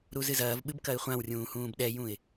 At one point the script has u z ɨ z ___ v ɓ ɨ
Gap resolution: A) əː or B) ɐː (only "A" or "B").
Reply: B